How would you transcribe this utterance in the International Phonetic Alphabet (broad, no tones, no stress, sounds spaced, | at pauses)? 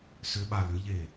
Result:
s ʏ ɓ a l ʏ ʎ e